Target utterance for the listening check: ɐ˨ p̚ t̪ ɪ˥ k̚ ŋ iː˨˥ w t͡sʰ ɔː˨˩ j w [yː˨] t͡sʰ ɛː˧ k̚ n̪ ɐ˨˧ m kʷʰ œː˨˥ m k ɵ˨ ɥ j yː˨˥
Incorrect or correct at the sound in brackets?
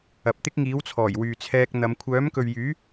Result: correct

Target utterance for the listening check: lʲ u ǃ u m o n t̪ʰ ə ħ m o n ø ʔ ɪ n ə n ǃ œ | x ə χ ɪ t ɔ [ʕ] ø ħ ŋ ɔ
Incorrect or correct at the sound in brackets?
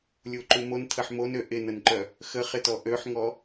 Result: incorrect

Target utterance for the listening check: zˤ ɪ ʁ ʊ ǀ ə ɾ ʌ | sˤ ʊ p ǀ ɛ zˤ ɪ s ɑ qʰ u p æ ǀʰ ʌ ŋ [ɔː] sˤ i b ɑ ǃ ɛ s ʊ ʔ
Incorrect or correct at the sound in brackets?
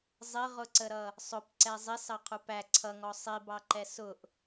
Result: incorrect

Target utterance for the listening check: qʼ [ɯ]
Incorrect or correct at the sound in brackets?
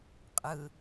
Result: correct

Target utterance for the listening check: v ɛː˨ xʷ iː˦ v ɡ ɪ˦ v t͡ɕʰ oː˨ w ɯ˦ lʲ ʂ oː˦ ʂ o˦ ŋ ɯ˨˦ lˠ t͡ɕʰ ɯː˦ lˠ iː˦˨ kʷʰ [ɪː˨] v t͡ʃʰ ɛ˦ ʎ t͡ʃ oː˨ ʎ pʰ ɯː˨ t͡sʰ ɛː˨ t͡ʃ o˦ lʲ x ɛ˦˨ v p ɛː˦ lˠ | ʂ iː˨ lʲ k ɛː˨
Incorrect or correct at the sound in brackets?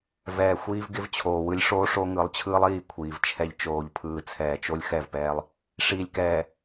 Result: incorrect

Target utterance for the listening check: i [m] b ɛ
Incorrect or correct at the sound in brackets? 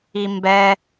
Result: correct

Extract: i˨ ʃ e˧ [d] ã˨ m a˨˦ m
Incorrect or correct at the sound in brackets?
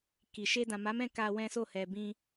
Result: correct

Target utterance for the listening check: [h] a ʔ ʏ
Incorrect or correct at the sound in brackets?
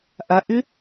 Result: incorrect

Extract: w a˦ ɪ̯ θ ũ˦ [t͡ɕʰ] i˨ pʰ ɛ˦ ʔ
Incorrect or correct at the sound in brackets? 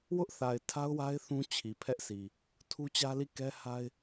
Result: correct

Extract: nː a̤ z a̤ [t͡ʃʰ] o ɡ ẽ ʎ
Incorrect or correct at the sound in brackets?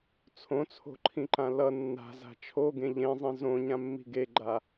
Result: correct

